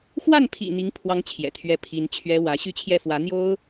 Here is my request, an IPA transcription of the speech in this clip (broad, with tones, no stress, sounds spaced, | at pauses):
x w a˥˩ n pʰ ḭ˨˩ n̪ i˧˥ ŋ pʰ w ɑ˧˥ ŋ t͡ɕʰ j ɛ̰˨˩ t̪ʰ ɥ ɛ˥˩ pʰ i˧˥ n t͡ɕʰ ɥ ɛ˥ w ä˧˥ ɕ y˥˧ t͡ɕʰ j ɛ˥˩ f w ä˧˥ n̪ j o˥ ʊ̯